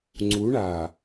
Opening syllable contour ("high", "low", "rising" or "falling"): rising